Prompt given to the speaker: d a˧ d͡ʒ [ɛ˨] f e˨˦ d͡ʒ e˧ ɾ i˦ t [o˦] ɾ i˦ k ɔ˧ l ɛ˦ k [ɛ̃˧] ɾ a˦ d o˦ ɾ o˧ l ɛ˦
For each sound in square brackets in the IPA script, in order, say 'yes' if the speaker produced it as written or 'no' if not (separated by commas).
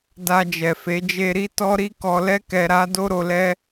yes, no, no